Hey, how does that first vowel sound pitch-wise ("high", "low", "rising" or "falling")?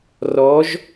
rising